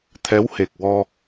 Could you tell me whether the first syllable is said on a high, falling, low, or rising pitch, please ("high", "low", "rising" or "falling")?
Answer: rising